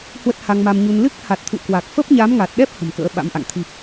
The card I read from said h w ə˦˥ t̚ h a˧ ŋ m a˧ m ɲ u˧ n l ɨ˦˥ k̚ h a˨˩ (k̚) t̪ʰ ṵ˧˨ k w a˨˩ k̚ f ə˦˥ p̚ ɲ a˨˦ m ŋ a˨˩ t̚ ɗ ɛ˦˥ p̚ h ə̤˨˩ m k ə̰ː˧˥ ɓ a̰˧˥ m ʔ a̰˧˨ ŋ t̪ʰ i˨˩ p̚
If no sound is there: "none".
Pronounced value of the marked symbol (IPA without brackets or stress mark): t̚